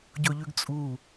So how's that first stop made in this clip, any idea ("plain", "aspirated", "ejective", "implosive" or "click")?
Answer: plain